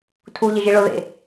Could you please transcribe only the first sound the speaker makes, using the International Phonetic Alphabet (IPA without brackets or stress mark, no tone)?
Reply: tʰ